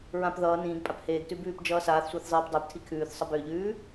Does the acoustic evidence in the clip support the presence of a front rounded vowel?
yes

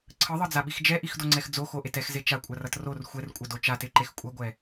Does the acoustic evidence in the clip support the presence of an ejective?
yes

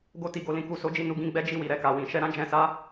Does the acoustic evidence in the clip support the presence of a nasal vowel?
yes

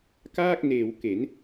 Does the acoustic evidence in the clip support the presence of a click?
no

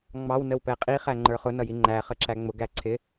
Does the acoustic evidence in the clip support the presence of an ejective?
yes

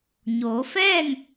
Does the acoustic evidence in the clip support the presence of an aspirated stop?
no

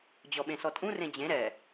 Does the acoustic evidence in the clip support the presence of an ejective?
yes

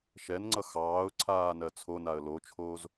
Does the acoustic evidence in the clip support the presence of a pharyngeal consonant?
no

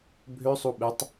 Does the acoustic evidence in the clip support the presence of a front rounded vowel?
yes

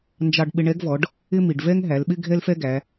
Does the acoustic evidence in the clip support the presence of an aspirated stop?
no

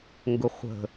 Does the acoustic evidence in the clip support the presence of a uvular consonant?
yes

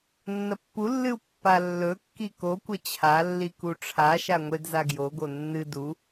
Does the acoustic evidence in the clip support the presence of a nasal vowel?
no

